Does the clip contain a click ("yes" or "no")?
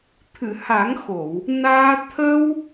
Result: no